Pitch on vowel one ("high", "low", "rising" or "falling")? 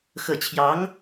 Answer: falling